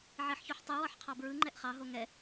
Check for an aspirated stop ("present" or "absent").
present